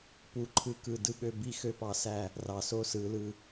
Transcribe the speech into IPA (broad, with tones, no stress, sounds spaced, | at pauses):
p u˧ ǃʰ ɯ˦ k ɯ˧ d ɯ˧ ɠ ø˧ b i˦ x ø˦ p ɑ˧ s æ˦˨ | r ɑ˨ s o˦ s ɯ˨˦ l ɯ˧